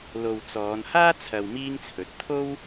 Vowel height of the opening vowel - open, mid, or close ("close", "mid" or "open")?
mid